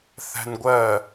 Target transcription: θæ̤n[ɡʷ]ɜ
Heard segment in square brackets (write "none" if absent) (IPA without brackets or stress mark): ɡʷ